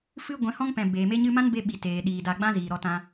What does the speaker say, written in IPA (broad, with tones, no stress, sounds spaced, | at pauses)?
f ɨ˦ ɡʷ ɛ̃˨˦ h ɔ̃˦ ŋ p ɛ̃˨ b eː˨ m e˦ ɲ ɨ˦ m ã˦ n b e˧ ɓ i˨ t eː˨ ɗ iː˨ d a˧ ɡ͡b ã˦ z iː˨ ɾ ɔ˧ t ã˧